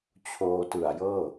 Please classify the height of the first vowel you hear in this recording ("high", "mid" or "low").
mid